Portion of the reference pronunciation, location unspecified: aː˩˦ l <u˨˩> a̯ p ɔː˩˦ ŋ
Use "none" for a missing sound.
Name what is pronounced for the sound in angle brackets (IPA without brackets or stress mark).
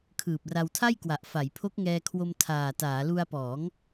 u˧